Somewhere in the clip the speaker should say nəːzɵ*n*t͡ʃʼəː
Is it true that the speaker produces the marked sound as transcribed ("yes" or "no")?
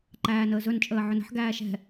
yes